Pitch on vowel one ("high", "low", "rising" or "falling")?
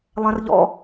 high